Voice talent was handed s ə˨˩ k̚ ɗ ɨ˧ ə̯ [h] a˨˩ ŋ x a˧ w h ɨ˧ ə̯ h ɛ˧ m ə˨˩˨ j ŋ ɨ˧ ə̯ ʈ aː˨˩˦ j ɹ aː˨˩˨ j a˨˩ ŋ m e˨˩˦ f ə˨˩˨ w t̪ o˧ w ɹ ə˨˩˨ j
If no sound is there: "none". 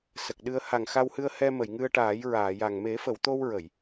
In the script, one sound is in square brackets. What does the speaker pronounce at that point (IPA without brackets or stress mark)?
h